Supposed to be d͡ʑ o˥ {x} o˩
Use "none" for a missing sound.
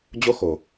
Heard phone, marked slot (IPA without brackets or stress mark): x